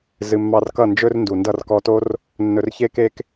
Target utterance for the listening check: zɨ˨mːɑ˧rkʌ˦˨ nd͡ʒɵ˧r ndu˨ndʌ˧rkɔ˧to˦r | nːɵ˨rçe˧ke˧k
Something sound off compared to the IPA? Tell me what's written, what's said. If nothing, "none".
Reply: none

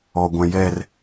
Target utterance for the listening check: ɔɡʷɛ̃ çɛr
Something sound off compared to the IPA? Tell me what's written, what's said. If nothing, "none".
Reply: ç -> j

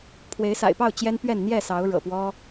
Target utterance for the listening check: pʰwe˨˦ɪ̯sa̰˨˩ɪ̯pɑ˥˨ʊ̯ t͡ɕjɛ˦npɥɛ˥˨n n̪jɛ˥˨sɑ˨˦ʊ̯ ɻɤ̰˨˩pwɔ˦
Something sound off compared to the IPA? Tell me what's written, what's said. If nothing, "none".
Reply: none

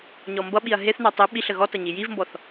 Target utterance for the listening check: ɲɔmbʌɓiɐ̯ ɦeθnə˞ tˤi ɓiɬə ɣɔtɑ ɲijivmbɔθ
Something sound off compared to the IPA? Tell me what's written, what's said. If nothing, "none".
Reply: ɑ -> ʌ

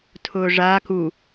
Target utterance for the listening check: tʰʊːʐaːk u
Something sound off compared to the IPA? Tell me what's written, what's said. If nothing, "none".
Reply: none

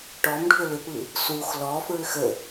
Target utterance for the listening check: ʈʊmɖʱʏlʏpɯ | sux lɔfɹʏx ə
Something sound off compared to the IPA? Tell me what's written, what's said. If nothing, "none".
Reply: ʊ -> ɔ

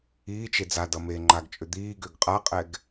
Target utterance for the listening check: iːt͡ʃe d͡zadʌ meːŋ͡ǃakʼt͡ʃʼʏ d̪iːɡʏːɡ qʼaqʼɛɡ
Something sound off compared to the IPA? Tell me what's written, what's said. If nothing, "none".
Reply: kʼ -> ɡ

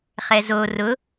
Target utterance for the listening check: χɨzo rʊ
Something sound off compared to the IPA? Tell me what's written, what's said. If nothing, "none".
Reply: ɨ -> ɛ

